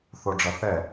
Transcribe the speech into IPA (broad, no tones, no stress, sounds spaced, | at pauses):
θ o ɖ͡ʐ ʌ θ ɛ